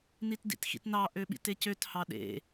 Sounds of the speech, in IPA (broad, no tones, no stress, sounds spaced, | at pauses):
n i t d ḭ t x ḭ t n ɑ ʔ ø ɓ ḭ t e c ø t h ɑ ɗ ḛ